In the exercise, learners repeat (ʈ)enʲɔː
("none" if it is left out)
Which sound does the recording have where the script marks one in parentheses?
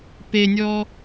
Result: p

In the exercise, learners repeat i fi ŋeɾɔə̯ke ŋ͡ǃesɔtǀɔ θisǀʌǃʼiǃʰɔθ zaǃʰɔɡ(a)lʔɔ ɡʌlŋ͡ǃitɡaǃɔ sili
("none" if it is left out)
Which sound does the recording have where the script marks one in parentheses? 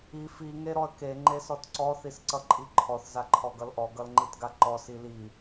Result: ʌ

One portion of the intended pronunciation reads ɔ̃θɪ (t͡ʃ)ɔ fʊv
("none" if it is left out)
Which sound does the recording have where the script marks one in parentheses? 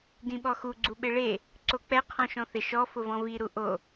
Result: ʃ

